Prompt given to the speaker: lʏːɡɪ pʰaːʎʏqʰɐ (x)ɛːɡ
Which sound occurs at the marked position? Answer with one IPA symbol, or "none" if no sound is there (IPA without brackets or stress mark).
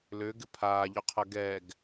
ɡ